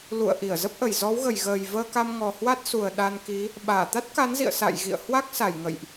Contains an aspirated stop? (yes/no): no